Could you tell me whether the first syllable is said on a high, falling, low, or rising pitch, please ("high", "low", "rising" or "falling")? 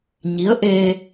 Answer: rising